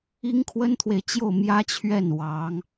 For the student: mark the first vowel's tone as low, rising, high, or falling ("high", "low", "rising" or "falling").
high